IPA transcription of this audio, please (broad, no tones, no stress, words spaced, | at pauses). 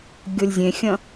ɡʲolʲzʲẽxʲɐ̃